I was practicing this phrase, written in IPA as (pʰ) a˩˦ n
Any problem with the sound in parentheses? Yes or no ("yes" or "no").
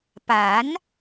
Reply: yes